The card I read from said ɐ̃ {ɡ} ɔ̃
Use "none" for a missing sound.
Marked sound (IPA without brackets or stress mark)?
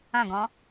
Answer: ɡ